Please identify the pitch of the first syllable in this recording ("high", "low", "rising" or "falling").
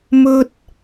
high